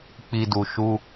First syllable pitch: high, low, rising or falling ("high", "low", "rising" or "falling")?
low